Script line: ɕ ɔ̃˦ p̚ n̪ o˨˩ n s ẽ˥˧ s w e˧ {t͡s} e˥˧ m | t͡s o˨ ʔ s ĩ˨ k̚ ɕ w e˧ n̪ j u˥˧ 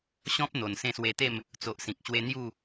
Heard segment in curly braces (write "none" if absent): t̪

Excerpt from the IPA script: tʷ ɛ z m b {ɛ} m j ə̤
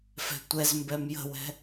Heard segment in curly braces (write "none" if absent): ɛ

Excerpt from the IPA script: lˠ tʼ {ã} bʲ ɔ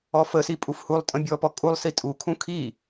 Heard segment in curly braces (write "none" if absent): ə̃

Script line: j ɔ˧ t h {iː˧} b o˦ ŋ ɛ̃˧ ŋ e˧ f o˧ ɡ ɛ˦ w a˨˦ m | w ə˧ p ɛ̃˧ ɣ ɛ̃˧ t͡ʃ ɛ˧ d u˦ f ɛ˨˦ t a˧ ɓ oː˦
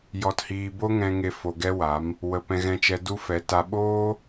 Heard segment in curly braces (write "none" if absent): iː˧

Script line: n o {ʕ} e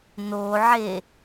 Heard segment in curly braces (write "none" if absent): ʕ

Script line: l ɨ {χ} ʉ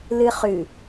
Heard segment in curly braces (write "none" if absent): χ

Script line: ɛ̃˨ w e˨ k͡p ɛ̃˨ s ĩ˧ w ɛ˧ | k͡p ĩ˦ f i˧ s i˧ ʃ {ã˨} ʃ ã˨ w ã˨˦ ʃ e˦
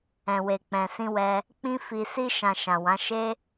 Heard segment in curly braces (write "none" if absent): ã˨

